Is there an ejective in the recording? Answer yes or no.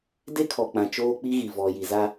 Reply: no